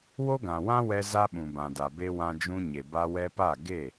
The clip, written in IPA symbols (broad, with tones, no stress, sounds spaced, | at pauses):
w o˦ ɡ ã˨ w ã˦ w ɛ˧ z a˦ ɓ ũ˨ b ã˨ d a˨ b e˧ w ã˧ d͡ʒ ũ˧ ɲ e˨ b a˧ w ɛ˧ p a˦˨ ɡ e˦˨